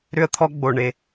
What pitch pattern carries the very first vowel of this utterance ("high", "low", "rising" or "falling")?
high